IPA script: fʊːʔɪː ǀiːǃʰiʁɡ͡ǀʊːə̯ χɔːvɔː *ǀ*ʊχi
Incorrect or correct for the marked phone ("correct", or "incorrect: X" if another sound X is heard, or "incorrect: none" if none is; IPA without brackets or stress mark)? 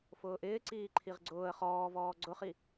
incorrect: ɡ͡ǀ